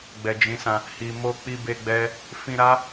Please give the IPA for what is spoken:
ɡ͡b ɛ˨ d͡ʒ ĩ˨˦ s ã˧ | h i˨ m o˧ k͡p i˧ b e˧ ɡ͡b ɛ˦ | f ĩ˧ ɾ a˦

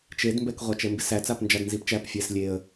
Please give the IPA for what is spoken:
t͡ʃ e d m b ɛ k ʁʷ a t͡ʃ ɛ m b ɪ s æ t͡s a p n d͡ʒ a d n z i p t͡ʃ æ p fʲ ɛ s lʲ e ə̯

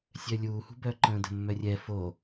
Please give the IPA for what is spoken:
sʲ œ lʲ uː h ṳ b œ ǃ ə̃ː d ə̤ mː œ rʲ ɛ f o

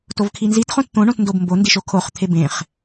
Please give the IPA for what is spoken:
t o v kʰ i n z i t χ õ t t̪ õ ɳ õ t n d o b m b o n d i ʃ o kʰ o χ t̪ʰ e b ẽ χ

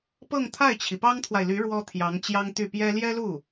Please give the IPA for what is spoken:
p ɤ˥˧ ŋ t̪ʰ a˥˩ ɪ̯ t͡ɕʰ i˩ p ɑ˥ ŋ t̪ʰ w a˨ ɪ̯ l y˧˥ ɻ w ɔ˥ t̪ʰ j ɑ˧˥ ŋ t͡ɕ j ɑ˥ ŋ t̪ y˥˩ p j ɛ˥ l j ɛ˥ l u˥˩

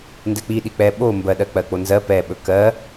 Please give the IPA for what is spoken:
n d ɛ k͡p i ɗ i k͡p ɛ ɓ o m b ɜ ɗ ɜ k͡p ɜ k͡p o n z ɜ p ɛ ɓ ɵ k ɜ

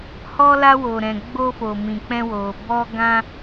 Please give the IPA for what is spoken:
h ɔ˧ l a˧ w o˨ ɾ ɛ̃˨ ɡ͡b o˧ f o˨ m ĩ˨ k͡p ɛ̃˧ w o˨ b ɔ˧ ɡ ã˧

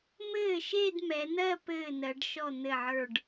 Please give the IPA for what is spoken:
m ɘː˥˩ ʃ e˥˧ d m ɛ˩˧ n̪ ɜ˥˧ p ɘː˥˩ n ɜ˩˧ ɖ ʃ ɔ˥˩ n̪ ɘ˥˩ ʕ ə˞˥˩ ɖ

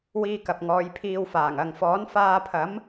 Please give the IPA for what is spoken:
w iː˧ k ɐ˨ p̚ ŋ ɔː˨˧ j pʰ iː˧ w f aː˨˩ ŋ ɐ˨ ŋ f ɔː˨˥ n f aː˧ pʰ ɐ˨˥ m

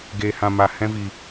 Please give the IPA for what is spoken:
ɡ eː˧ h ã˧ m a˧ h ɛ̃˦ v iː˧

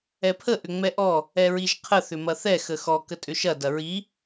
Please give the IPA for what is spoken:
ɛ pʰ ə ʔ ʏ ŋ͡m ɛ ʔ ɔ | ɛ ɹ i ʒ qʰ ə θ ʏ m ɐ θ ɛ x ə x ɔ k ə tʼ ʏ ʃ ɐ d ɐ ɹ i

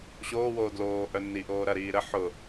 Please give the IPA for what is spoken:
ɕ oː w oː d l oː ʔ œ nː i ʔ oː ɾ ɐ ɾ iː ɾ ə ħ ʊ

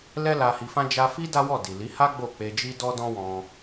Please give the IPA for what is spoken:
l ɛ˦ l a˧ h i˧ f ã˦ d͡ʒ a˧ f i˦ d a˦ w ɔ˦˨ d i˨ l i˨˦ h a˦ ɡ͡b o˦˨ k͡p e˧ d͡ʒ i˦ d ɔ˦ d ɔ̃˦ w ɔ̃˧

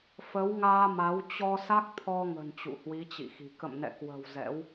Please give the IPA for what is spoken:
f ə˨˦ w ŋ aː˧ m a˨˦ w t͡ɕ ɔ˧ s a˦˥ k̚ t̪ʰ ɔ˧ ŋ ə̤˨˩ n t͡ɕ ṵ˧˨ h w i˨˦ t͡ɕ ḭ˧˨ x i̤˨˩ k ə̰˧˨ m n ɛ̰˧˨ k w ə̤˨˩ w z ɛ̰˧˥ w

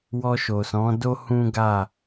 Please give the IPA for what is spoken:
w ɔ˧ ʃ o˨ s ɔ̃˨˦ d o˦ h ũ˦ ɡ a˦˨

